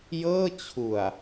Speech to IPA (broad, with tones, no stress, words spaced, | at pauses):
jɤː˥˩t͡ɕʰu˨˩a̯